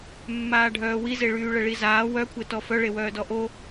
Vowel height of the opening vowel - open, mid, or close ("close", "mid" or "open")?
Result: open